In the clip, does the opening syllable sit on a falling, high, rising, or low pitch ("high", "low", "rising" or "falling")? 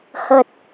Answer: low